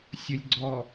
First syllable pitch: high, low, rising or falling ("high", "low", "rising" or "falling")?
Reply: low